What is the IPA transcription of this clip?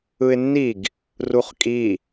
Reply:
ɯ ɪ̯ nː i ɡ | r u χ kʼ i

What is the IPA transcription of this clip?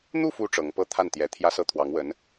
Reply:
n̪ u˥˩ f u˧˥ ʈ͡ʂ ɤ˧˥ ŋ p ɤ˥ t̪ʰ a˥˩ n t̪ j ɛ˧˥ t̪ʰ j ä˥ s ɤ˥ t̪ʰ w ɑ˧˥ ŋ w ə˧˥ n

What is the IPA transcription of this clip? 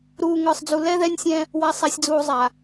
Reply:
ɾ uː˨ ŋ ə˞˨ sˤ d͡z u˨ l ɛ˦ ð ɛ˦ nʲ sʲ ɛ̃˦ | w a˨ sˤ a˨ sʲ d͡z uː˨ zˤ a˨

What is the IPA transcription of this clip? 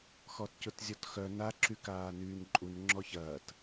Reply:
x ɔ t c ʊ t zʲ ɔ t x œ n a ǁ y k aː n yː n ǃʼ u n ŋ͡ǁ ɔ ç ɐː t

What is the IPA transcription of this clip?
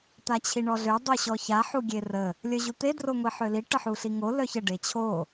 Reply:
t̪ a t͡ɕʰ i ɳ ɔ ɮ ø dˤ u ɕ ɔ ç a ħ u ɡʲ e r ə | lʲ œ ʑ u t̪ e d r o ŋʷ i ħ ø l i ʈ ə ħ u ɬ i ŋ o l œ ç ə ɖ e t͡ɕʰ o

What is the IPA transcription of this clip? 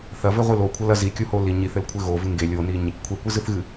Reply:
θ ɐ v ɘ ʁʷ ɨ l o kʷʰ ɐ l ɐ z i kʲ u h o l i ɲ i θ ɘ l kʷʰ ɘ ɣ o v ɨ ŋ ɡ e lʲ o n i ɲ | kʷʰ e kʷ ɨ z ɨ θ ɣ ɨ

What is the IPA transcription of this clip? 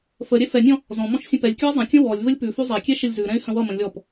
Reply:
f ə ɾʲ ɛ f ɛ nʲ ɔ̃ | z ɔ̃ m ɔ̃ ʃ sʲ ə̃ p ɛ lʲ kʲ ʉ i̯ zˤ ə̃ kʲ ə̃ w ɔ lʲ v ə lʲ p ʉ f ʉ zˤ ɛ kʲ ɛ ʃ ə lʲ z ʉ ɾ ɛ̃ y̯ h ə̃ w ʌ m ə̃ lʲ ɔ p

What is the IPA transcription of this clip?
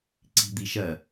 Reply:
ǀ i̤ d̪ i ʃ ɜ

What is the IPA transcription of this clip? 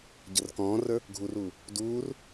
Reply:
ɟ ə r k ɔ̃ː r ə˞ | ɡʱ u r uː | d uː r

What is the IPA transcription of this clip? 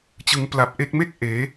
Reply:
t͡ɕ ɯ˩˦ ŋ p l a˨˩ p̚ ʔ e˦˥ k̚ m e˥˩ k̚ ʔ eː˩˦

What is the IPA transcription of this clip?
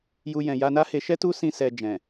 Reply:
j u˦ j ɛ̃˧ j a˧ n a˦ h e˧ ʃ ɛ˦ t u˦ s ĩ˧ s ɛ˧ d͡ʒ ɛ̃˨

